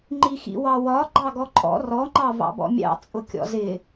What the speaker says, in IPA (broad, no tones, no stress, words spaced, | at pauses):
ŋ͡ǃixḭwɑwɒ ɡ͡ǃɑɡɔǃʼɔ̰ rɔ ŋ͡ǃɑvɑ̰bɔ̰mʲɑ̰ t͡sʼʊkʲɔ̰zɪ